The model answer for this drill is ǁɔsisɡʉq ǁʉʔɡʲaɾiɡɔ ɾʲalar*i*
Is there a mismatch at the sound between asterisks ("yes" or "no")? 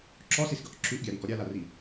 no